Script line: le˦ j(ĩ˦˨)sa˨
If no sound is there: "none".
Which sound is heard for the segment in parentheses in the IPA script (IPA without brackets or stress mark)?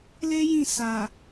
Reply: ĩ˦˨